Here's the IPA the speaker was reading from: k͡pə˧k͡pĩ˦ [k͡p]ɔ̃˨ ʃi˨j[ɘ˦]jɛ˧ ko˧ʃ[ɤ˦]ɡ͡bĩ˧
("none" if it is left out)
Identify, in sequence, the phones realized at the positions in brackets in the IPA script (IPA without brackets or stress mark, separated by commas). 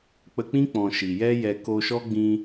k͡p, ɛ˦, ɔ˦